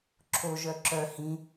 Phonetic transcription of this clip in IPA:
ǁʰ o ʒ œ ǁ œ h ĩ

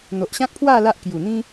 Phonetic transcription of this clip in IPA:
n̪ o˨ ʔ ɕ ã˦ k̚ pʰ w a˥˧ l a˦ ʔ k j u˨˩ n̪ ĩ˦

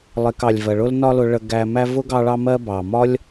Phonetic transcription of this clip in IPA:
lˠ ɪ˨ k ɑ˩ lʲ v ɜ˩ ɭ ʊ˥ l n ɒ˦ l ʊ˨ ɭ ə˨ ɡ æ˨ m æ˦ v ʊ˥ ɡ ɑ˦ ɭ ɑ˦ m ɜ˦ b ɑ˩ m ɒ˥ lʲ

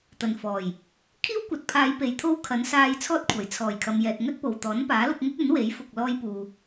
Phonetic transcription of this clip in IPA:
t̪ ɐ˨˩ n f ɔː˨˩ j | kʰ iː˥ w kʷ ɐ˨ t̚ pʰ aː˨˧ j p e˨˧ j t̪ʰ o˥ w kʰ ɐ˨˥ n s aː˧ j t͡sʰ ɔː˥ t̚ kʷʰ ɐ˨˩ j t͡sʰ ɔː˨˩ j kʰ ɐ˨ m j ɛː˨ t̚ ŋ ɵ˥ t̚ p o˨ w t̪ ɔː˨˥ n p aː˨˥ l ʊ˧ k̚ ŋ ʊ˥ k̚ ɵ˨˥ n w e˨˥ j f ʊ˨ k̚ l ɔː˧ j p uː˨

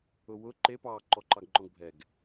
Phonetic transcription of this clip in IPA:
ʊ w ʊ ǃ e p ɑː ǃ ɔ ǃ ɑ ɡ ŋ͡ǃ ɔ̃ ɡ bʱ ɛ ɡ

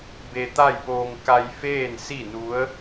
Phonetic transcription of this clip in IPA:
b e˧ t̪ a˥˨ j p oː˧ ŋ k a˧ j f eː˥˨ n s i˥˨ n u˧˥ ə̯

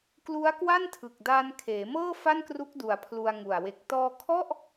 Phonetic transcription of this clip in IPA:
k l u˦˥ a̯ k w a˥˩ n tʰ ɯ˨˩ k̚ d aː˧ n kʰ eː˩˦ m ɤː˥˩ f a˥˩ n k r u˦˥ k̚ d u˩˦ a̯ pʰ l u˧ a̯ ŋ u˨˩ a̯ w e˨˩ k̚ t ɔː˧ kʰ ɔ˥˩ ʔ

